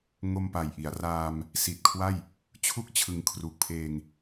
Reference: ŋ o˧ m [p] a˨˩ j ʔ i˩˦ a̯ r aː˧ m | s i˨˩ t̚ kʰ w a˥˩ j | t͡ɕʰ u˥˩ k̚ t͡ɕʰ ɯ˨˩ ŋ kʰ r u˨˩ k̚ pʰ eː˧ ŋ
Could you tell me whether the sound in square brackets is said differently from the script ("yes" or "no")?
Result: no